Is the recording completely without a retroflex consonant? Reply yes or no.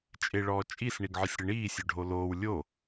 no